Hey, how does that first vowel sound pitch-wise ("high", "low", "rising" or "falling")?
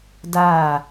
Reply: falling